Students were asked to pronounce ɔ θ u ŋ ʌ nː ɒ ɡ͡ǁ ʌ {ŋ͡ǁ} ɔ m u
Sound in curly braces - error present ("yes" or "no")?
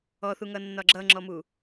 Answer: no